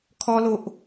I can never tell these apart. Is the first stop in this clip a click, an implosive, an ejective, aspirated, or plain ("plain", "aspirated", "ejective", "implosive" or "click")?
aspirated